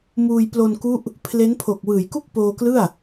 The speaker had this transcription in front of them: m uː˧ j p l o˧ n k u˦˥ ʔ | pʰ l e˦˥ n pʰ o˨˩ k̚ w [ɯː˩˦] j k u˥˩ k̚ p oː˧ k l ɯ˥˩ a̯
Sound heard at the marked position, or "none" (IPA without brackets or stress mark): ɯː˩˦